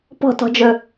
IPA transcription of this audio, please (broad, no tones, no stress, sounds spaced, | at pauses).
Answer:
p ɔ̤ t ɔ̤ d͡ʒ ɵ